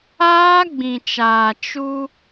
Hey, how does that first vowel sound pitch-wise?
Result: high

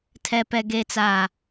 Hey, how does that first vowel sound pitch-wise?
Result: low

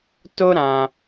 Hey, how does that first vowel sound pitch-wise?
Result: high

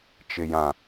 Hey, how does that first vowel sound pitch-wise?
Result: low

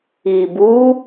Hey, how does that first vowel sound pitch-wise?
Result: low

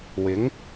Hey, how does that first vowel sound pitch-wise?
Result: rising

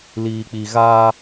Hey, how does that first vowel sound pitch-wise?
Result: low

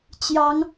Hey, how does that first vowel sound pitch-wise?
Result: rising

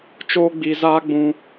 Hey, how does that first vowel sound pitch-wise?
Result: high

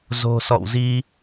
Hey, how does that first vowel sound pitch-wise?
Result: low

